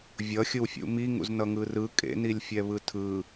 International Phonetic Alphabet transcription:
vʲ ʌ xʲ ɯ w fʲ ṵ m i ŋ ṵ z n ʌ ŋ ɯ r ɯ kʼ ḛ n i lʲ fʲ ɛ β ɯ tʰ ɯ

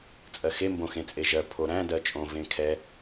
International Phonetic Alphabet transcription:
t͡sʼ ɜ x e m b õ x ẽ t͡sʼ e ʒ ɜ pʰ o ɾ æ̃ d ɜ t͡ʃʼ õ v ẽ kʰ ɛ

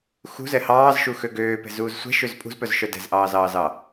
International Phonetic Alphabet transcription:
x ṳ z ɛ h ɑː z ʃ u x ø ɡ øː p ɛ̤ z uː z sʷ ɛ̤ ʃ ø z pʼ ṳ z p œ z ʃ œ d ɛ̤ z ʔ ɑː z ɑː z ɑ

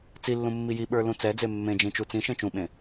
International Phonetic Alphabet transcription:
t͡s i lː ũ mː i j i ɓ ə˞ l ũ t͡s ɛ d͡z e mː ẽ d͡ʒ ĩ t͡ʃ u t͡s ĩ ʃ ẽ t͡ʃ ũ ɓ ẽ

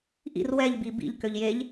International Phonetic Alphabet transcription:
ʔ ḭ r w ɛ ʎ b i b ḭ ʎ k ø ʎ j e ʎ

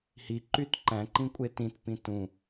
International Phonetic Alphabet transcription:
h i ǃ y t ǃ æ̃ ǃ ĩ kʷʼ e t ĩ t p ĩ t ũ

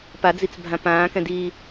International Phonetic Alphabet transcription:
p a d͡z i t͡s bʱ ã p ãː k ɛ̃ d iː

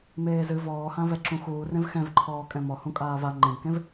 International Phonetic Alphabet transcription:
m eː z ɨ v ɔː h ã v ɛ ǁ ũ x uː r ẽ v x ɛ̃ v ǃʰ ɔː kʼ ɛ̃ m ɔ h ũ kʼ aː v a ŋ͡ǃ ẽ b k ẽ v

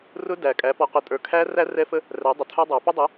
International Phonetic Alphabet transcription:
r ʊ˦˥ d æ˨˩˦ kʼ æ˩˥ p ɔ˩˥ q ʊ˩˥ tʼ ə˞˩˥ kʰ æ˦˥ r æ˦˥ r ɛ˦˥ f ə˦˥ | r æ˩˥ dˤ ə˨˩˦ tʰ ə˞˦˥ dˤ ɑ˨˩˦ p ə˦˥ dˤ ɛ˩˥

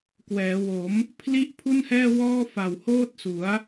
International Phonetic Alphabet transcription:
k w ɛː˩˦ w o˩˦ m | pʰ l i˦˥ ʔ pʰ u˥˩ n h ɛː˥˩ w ɔː˥˩ f a˨˩ w h oː˥˩ t̚ s u˩˦ a̯

